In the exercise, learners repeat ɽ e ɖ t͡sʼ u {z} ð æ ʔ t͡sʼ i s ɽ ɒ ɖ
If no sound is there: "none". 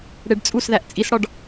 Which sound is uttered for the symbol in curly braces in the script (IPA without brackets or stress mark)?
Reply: s